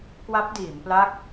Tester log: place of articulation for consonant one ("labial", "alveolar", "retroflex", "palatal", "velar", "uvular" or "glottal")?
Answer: velar